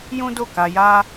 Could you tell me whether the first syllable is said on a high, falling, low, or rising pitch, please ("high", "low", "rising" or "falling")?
high